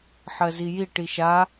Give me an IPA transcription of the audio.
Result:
ħ ɜ z i j i ʈ i ʃ a

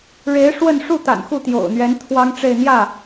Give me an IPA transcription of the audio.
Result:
ɻ e˧˥ ɪ̯ ʂ w ə˥˧ n ʂ u˥˩ t̪ a̰˨˩ n x u˥˩ t̪ j o̰˨˩ ʊ̯ n̪ ɥ ɛ˧˥ n t̪ʰ w ɑ˥ ŋ ʈ͡ʂ e˥˧ ɪ̯ n̪ j ä˥˩

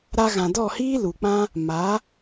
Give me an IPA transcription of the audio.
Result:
ɾ a˧ ɣ ã˨ d ɔ˦˨ h iː˦ l u˨ k͡p ã˦ | m a˨˦

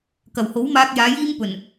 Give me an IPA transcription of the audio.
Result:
k ɐ˨˩ w h o˨˥ w m aː˧ k̚ j aː˨˧ j iː˥ m p ɵ˨˩ n

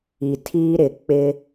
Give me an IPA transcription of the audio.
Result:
i˨ tʰ iː˦ ɾ ɪ˨ k͡p ɪ˦

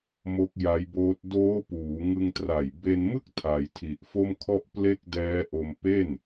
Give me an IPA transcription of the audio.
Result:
m o˦˥ k̚ j a˦˥ j b oː˦˥ t̚ d oː˦˥ p uː˩˦ ŋ ɯ˧ ŋ t r a˨˩ j b e˧ n m ɯ˥˩ k̚ tʰ a˩˦ j tʰ i˨˩ ʔ f o˥˩ m kʰ ɔ˥˩ ʔ p l e˥˩ k̚ d ɛː˦˥ ʔ o˧ m p e˥˩ n

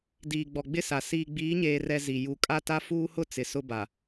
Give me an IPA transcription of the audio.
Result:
d iː˨ ɡ͡b ɔ˨ ɡ͡b ɪ˦ s a˨ s iː˨ ɡ͡b iː˨˦ ɲ eː˨ r ɛ˨ z i˨ j u˨ kʼ a˦ t a˦ f uː˦ h ʊ˦ t͡s ɪ˨ s ʊ˦ b a˨

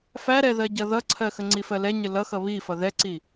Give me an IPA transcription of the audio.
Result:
f æ ɾ ɛ ð ɜ ɟ ʌ ð ʌ ǀʰ ɜ x ə ŋ͡ǀ i f ɜ l ɛ ɲ ə l ʌ x ʌ β i f ʌ ð ɛ ǀ i

